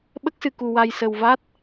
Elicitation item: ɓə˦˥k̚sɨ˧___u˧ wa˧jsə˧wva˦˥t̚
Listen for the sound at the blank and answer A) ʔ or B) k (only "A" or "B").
B